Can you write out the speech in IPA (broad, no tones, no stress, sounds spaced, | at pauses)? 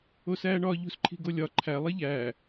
o s æː ɳ ɒː ʎ ṳ s ǃʰ i̤ ɡ o lʲ ɒ ǃʰ æ lˠ i ʎ æː